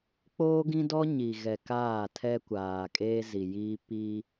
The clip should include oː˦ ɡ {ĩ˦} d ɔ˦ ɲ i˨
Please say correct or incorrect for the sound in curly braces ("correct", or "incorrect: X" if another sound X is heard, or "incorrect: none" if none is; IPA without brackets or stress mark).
correct